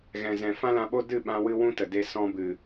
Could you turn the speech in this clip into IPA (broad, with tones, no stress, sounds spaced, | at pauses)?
ɣ ɛ̃˨ z ɛ̃˨ f ã˦ l ã˧ ɓ o˦ d ɨ˦˨ ɓ ã˧ w ɨ˧ w ũ˦ t ə˨ d e˧ s ɔ̃˧ b ɨ˨